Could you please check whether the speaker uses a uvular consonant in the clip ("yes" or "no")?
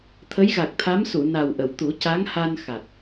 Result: no